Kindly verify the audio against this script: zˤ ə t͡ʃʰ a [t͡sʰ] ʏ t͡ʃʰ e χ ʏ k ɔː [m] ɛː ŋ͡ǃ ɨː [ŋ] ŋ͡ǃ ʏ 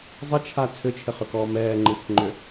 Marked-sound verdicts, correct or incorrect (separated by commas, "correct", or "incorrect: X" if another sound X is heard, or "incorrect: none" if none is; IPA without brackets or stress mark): correct, correct, incorrect: k